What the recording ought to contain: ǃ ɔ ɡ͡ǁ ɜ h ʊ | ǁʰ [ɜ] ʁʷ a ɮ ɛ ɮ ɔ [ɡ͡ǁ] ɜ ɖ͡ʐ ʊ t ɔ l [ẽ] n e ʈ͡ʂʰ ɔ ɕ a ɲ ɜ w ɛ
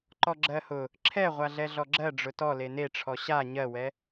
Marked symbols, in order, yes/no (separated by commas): no, yes, no